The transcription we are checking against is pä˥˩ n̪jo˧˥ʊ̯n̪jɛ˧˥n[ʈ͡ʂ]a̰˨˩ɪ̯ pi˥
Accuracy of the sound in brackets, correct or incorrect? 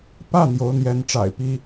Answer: correct